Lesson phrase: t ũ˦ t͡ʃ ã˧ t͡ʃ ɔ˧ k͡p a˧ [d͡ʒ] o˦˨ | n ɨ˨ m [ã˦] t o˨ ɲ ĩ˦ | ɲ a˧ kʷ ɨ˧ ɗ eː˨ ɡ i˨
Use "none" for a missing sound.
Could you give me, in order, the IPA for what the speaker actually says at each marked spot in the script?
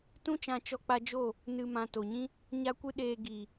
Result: d͡ʒ, ã˨

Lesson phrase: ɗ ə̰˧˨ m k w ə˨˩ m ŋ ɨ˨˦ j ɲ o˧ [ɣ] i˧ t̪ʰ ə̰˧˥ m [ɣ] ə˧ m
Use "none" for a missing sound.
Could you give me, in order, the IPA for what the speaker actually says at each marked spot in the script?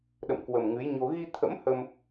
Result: ɣ, h

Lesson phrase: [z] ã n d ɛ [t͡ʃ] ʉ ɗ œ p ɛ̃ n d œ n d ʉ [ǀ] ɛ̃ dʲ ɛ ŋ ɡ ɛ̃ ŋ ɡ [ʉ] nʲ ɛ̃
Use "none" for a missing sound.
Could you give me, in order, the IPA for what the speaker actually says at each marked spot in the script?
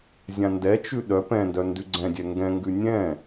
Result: zʲ, t͡ʃ, ɡ͡ǀ, ʉ

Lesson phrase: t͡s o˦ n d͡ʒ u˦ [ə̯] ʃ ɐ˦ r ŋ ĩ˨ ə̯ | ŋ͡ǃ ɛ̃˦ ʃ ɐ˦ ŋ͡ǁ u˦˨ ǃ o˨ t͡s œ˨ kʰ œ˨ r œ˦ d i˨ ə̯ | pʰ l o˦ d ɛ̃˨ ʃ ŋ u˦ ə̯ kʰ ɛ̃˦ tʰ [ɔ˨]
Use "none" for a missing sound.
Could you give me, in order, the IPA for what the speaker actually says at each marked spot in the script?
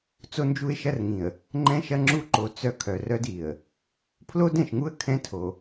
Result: ɪ̯, o˨

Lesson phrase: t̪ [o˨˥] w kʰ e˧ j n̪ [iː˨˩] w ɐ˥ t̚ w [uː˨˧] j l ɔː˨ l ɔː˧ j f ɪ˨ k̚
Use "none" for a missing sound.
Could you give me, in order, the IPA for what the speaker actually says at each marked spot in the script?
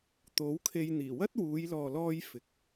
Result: o˨˥, iː˨˩, uː˨˧

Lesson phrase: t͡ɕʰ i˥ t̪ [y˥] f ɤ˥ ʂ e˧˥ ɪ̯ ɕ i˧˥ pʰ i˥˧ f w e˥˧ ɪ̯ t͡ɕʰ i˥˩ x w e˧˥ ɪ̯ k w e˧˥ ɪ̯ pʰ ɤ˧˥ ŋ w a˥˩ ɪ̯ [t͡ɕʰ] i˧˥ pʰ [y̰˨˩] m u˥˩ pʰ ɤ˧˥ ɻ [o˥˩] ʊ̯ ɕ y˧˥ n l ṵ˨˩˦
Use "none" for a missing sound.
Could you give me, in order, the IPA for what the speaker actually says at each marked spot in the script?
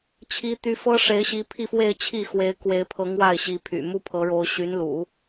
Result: y˥, ɕ, y̰˨˩, o˧˥

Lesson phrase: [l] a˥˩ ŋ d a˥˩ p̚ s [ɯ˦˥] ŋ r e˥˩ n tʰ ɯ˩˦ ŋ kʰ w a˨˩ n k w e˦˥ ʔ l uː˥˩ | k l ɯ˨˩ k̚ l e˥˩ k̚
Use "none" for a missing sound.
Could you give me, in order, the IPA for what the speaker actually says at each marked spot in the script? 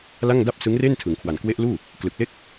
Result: l, ɯ˦˥

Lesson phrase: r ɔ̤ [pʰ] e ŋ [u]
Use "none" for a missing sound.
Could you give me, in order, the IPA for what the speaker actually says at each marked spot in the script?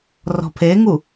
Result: pʰ, u

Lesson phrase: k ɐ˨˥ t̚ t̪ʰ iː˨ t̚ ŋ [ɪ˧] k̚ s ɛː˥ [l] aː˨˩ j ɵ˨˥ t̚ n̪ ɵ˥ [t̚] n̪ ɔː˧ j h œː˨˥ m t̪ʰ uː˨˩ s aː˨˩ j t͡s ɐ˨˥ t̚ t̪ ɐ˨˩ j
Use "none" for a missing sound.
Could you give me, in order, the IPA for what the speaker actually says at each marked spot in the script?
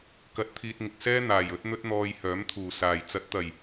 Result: ɪ˨, n̪, t̚

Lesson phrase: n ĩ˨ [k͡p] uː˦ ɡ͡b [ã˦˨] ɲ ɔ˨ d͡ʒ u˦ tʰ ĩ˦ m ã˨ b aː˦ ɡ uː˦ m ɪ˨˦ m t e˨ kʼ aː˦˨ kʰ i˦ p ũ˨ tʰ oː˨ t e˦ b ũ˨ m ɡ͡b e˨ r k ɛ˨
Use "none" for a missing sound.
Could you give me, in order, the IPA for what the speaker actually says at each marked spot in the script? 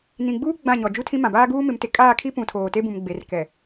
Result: ɡ͡b, ã˦˨

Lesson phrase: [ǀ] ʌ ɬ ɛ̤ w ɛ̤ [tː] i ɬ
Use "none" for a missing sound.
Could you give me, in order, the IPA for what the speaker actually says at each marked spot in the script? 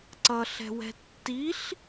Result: ǀ, tː

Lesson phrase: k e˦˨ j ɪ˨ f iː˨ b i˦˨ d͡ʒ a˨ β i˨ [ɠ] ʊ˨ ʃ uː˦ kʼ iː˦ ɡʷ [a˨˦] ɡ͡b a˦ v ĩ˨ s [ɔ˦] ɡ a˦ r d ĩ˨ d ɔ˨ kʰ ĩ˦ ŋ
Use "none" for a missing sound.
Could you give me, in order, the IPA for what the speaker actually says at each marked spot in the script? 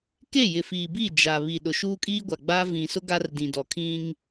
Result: ɗ, a˨, ʊ˦

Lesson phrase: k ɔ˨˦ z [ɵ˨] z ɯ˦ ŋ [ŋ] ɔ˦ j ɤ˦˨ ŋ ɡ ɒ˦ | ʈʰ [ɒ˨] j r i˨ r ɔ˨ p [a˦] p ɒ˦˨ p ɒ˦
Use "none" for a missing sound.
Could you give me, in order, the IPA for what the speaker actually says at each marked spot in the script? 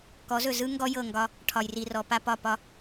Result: ɵ˨, ɡ, ɒ˨, a˦

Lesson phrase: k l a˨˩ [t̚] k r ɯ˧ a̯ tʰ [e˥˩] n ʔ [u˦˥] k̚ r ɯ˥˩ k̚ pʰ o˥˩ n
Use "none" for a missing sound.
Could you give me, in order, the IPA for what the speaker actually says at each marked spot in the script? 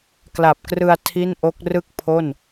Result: p̚, i˥˩, o˦˥

